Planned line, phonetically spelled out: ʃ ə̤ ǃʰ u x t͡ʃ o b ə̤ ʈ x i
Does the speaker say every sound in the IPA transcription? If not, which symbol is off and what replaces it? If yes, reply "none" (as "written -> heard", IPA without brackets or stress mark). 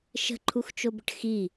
none